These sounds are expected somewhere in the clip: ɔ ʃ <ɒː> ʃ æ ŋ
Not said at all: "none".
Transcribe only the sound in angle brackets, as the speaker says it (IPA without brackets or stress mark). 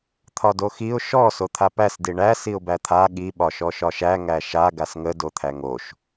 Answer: ɒ